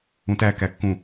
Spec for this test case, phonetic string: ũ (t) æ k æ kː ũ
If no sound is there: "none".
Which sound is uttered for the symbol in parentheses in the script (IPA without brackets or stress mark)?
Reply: t